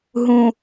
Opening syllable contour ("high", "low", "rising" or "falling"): low